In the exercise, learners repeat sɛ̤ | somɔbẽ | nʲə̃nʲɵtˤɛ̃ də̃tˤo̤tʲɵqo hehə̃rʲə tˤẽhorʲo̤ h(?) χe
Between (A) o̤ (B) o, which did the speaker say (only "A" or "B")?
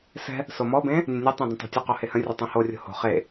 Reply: A